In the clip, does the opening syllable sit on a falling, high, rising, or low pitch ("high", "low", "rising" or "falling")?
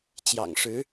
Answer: low